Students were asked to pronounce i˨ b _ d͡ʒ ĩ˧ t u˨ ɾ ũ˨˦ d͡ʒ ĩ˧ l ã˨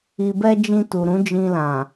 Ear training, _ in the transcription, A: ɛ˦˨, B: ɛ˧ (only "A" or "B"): B